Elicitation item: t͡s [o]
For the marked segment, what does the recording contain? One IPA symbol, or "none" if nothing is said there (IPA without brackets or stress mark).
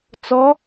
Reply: ɔ